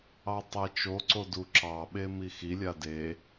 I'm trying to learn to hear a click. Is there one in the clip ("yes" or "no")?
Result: yes